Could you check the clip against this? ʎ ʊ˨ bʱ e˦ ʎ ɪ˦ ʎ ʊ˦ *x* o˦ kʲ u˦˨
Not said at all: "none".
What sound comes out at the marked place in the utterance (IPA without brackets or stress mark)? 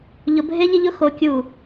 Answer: x